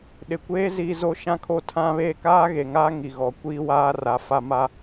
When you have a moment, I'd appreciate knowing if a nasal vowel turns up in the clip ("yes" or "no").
yes